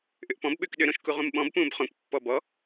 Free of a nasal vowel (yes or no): no